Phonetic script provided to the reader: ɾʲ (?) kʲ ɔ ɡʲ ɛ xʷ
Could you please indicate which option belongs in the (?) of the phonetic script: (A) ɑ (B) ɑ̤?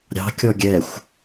B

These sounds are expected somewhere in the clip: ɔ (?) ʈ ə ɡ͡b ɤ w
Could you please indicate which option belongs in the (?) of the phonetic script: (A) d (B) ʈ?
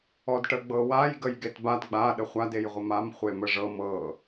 A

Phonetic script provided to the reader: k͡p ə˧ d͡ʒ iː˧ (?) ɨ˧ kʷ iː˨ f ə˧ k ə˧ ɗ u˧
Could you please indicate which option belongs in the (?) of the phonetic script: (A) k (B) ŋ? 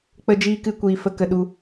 A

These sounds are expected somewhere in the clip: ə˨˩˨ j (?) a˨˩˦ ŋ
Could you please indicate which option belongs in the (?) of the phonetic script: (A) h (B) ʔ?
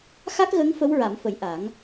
B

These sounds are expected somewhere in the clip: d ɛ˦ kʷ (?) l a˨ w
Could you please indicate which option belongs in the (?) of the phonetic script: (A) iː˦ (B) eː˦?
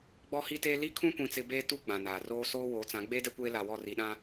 B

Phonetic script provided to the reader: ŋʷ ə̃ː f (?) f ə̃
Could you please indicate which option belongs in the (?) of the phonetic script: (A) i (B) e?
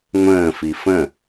A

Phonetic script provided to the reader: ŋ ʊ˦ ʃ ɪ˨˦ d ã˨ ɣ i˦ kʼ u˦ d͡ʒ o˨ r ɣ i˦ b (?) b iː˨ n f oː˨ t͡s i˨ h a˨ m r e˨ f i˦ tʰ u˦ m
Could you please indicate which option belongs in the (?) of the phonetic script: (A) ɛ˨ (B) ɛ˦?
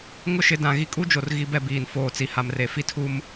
B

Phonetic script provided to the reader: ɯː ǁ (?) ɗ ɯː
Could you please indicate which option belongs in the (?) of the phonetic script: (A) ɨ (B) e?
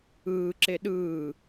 B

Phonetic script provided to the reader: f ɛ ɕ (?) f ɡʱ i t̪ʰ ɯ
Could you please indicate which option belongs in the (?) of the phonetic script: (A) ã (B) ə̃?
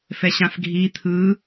A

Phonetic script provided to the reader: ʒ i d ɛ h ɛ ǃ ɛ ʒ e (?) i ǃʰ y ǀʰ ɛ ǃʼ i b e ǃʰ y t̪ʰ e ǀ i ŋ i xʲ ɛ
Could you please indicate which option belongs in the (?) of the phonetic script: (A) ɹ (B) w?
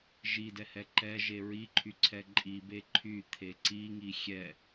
A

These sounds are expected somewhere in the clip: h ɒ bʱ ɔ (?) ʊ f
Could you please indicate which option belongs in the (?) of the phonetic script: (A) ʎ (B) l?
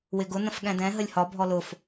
B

